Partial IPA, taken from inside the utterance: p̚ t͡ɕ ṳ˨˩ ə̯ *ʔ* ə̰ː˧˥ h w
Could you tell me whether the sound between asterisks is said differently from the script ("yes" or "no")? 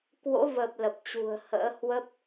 yes